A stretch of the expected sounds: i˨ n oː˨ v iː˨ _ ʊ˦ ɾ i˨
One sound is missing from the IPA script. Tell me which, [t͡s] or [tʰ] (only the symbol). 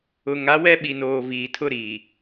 tʰ